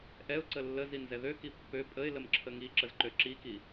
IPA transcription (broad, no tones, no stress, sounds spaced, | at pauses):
ʔ ɛ ʊ̯ ǀ ə lː ə z i n z ɛ ð ø k i pː ø pʼ ə ɪ̯ l ə m ǁʰ ə ŋ i ǁ ə z ǃ ø ǁ i k i